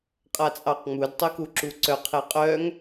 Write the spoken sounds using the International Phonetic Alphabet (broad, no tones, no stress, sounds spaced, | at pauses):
qʼ a t͡sʼ ɑ q ŋ͡m u d tˤ o k u ǁ u ǀ œ qʰ e qʼ œ ŋ